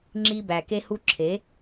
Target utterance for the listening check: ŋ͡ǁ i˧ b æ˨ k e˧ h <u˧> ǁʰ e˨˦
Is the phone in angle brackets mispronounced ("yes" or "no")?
no